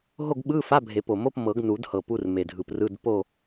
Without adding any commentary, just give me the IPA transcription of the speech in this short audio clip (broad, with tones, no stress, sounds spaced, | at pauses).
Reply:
ɦ o˥˨ ɡ ɓ ɯ˧˥˧ f a˧˥˧ bʱ e˨˩˦ p o˨˩ m o˧˥˧ p m ɤ˨˩˦ ɡ n u˨˩˦ d h ɤ˨˩ p u˧˥˧ r m e˨˩ dʱ ɯ˨˩ p r ɯ˧˥˧ d p o˥˨